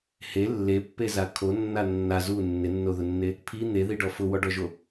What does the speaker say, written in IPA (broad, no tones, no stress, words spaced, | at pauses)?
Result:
he lːepːeza kʰonːa nːa zu nːɪnːoðʊnːe | pʰi n̪eðiɖɔ fʊwɔɖɔʒo